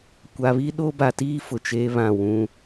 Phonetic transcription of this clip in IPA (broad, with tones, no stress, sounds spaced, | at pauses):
kʷ a˨ β i˦ ɗ o˦ b a˨ t iː˦ f ʊ˨ t͡ʃ eː˦ β ã˦˨ w ũ˦